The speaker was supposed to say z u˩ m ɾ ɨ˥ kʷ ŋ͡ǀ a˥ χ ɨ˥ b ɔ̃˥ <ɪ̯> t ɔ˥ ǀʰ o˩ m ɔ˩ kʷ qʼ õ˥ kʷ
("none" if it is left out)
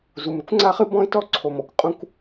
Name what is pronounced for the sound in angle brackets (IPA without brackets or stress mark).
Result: ɪ̯